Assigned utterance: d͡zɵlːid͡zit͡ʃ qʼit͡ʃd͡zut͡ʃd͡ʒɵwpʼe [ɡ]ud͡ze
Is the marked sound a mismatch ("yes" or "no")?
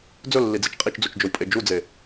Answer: yes